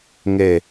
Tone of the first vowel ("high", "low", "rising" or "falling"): falling